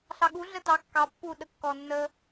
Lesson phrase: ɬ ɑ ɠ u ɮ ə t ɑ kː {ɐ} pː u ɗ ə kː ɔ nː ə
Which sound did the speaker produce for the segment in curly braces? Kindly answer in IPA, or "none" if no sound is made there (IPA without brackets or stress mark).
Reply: ɑ